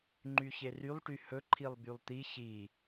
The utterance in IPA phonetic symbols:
ŋ͡ǃ y ç e r y lˠ ʈ y h ɵ ǃʰ i lˠ b y lˠ t̪ i ç i

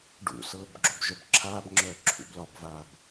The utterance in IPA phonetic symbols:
ɖ ṵ s ɤː b ɡ͡ǁ o b ʒ œ b ǁʰ aː b ŋ͡ǁ œː ǁʰ ṵ b l ɒ b v aː b

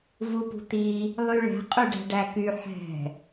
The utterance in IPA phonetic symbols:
v u p ṳ t̪ i | lˠ y ɭ ɛ̤ qʼ y ɖ æ̤ ɖ æ k y ħ ɛ̤

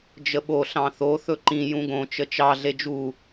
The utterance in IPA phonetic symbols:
d͡ʒ ə ɓ o ɬ ɑ̃ θ o θ ɵ ǃ ĩ j ũ ɡ õ t͡ʃ ə t͡ʃ ɑ ɮ e d͡ʒ u

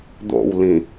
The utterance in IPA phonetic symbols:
d̪ o̰ w l ĩ

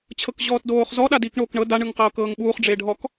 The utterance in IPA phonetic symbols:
t͡ɕʰ ɤ k ʑ ɔː t d oː χ z ɔ ɗ a d iː k ɳ oː k ɳ ɤ d a ɳ ɯ ŋ q ɤː k ɤː ŋ ɓ uː χ ɖ͡ʐ e ɖʱ ɔ k

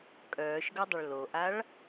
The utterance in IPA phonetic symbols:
kʼ œː ʃ ɡ œ dˤ ə ɭ l o ʔ a ɭ

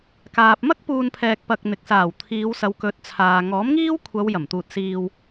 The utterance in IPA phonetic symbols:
k aː˨ p̚ m ɐ˥ k̚ p uː˨ n pʰ ɛː˨ k̚ p ɐ˧ k̚ n̪ ɪ˨ k̚ s aː˨˩ w t̪ʰ iː˨˧ w s ɐ˨˧ w k ɵ˨˥ t̚ t͡sʰ aː˨ ŋ ɔː˨˥ m ŋ iː˥ w kʷʰ ɐ˨˧ w j ɐ˨˩ m t̪ uː˨ t̚ s iː˨ w

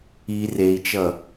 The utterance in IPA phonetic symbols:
i r e i̯ t͡ʃ ʌ

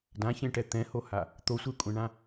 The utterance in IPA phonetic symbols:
d ã ç ẽ ʈ ɛ t̪ ɛ̃ h o h a | t̪ o sʷ e kʷʼ ɛ̃ ɳ ã

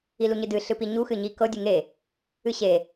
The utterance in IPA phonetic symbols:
i l u ɲ ɨ d ɨ ɬ ɨ p i ɲ u x ɨ ɲ i k ɤ dʲ ɨ ŋ e | ɨ ɕ e

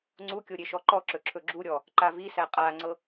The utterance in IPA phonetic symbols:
ŋ͡ǀ u kʲ o ɾʲ e ʃ ɔ ǃ ɔ ǁ ɵ ǁʰ ɵ ɡ͡ǁ u ɾʲ ɔ | ǃ a v i s æ qʼ a ŋ͡ǀ ɤ

